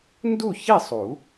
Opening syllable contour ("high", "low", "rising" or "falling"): falling